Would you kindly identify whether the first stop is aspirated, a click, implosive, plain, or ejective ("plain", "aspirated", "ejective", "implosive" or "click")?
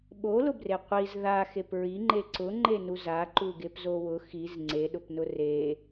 implosive